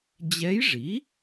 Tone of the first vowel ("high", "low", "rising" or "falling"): rising